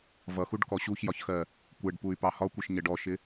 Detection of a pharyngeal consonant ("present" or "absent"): absent